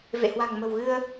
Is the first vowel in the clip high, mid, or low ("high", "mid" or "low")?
mid